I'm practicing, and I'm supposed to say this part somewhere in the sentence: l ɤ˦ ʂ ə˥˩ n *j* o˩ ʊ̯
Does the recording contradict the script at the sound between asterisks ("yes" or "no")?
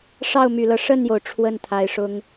no